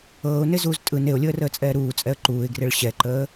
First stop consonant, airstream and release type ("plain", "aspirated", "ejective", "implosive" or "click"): ejective